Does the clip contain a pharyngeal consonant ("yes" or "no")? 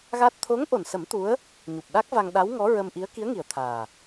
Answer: no